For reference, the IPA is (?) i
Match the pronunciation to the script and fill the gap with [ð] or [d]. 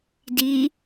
d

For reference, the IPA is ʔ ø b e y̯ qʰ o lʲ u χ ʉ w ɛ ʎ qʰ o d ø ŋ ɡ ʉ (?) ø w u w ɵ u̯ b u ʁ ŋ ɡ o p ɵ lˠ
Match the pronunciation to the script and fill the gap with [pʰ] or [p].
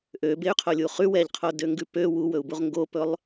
p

